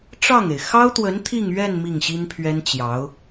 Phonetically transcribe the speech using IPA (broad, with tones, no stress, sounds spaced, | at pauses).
ʈ͡ʂ ɑ˥˩ ŋ e˩ ɪ̯ x ɑ˥ ʊ̯ t̪ w ə˧˥ n t̪ʰ i˥˧ ŋ ɥ ɛ˥˧ n m i˥˩ ŋ ɕ i˥ n pʰ ɥ ɛ˥ n t͡ɕ j ɑ˧˥ ʊ̯